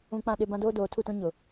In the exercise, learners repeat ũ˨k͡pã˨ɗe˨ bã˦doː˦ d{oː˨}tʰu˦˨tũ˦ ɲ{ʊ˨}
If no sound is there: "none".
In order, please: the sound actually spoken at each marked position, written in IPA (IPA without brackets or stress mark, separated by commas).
oː˨, ʊ˨